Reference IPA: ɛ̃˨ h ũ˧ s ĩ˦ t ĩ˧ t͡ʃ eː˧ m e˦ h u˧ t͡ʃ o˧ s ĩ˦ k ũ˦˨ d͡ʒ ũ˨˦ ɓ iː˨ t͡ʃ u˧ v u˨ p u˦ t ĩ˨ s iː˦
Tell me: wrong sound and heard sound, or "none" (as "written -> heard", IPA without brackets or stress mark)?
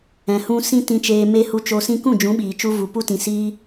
none